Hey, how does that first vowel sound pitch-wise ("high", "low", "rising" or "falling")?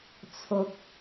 low